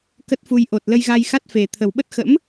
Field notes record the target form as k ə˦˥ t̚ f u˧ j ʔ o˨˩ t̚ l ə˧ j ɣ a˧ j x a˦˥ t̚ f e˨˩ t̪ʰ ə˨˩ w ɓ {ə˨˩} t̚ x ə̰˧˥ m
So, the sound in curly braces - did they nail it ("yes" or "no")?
no